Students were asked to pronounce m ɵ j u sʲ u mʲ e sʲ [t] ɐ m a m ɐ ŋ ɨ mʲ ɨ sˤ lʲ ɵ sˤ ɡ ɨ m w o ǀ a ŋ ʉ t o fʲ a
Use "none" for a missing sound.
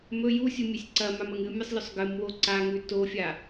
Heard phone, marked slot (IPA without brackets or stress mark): ǀ